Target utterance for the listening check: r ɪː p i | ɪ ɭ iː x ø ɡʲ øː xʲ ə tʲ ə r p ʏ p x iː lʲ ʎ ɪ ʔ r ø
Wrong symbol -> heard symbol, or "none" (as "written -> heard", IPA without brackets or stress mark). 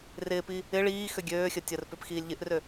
none